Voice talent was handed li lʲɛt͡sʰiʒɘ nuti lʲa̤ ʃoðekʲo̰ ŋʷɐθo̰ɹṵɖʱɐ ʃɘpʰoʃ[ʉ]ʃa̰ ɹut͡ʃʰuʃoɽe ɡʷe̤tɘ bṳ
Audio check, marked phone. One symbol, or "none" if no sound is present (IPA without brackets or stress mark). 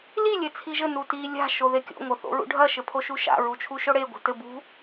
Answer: u